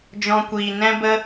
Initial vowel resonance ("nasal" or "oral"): nasal